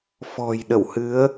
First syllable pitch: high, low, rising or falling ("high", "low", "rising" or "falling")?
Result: low